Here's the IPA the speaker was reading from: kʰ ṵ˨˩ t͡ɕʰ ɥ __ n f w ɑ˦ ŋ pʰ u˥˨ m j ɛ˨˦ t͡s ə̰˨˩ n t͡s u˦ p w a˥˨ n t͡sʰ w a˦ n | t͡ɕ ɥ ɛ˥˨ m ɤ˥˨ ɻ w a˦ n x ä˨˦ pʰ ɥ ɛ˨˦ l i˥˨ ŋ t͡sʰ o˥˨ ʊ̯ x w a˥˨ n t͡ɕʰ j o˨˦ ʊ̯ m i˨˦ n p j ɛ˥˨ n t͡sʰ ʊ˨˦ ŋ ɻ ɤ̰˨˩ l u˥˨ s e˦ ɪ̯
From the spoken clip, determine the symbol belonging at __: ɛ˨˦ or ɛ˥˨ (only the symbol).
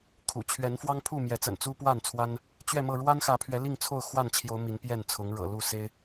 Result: ɛ˨˦